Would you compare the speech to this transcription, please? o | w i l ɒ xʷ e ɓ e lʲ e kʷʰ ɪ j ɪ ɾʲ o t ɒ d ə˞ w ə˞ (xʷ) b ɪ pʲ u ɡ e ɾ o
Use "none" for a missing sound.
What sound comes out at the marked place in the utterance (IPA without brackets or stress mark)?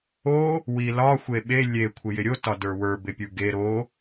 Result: none